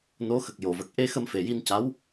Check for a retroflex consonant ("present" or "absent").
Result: absent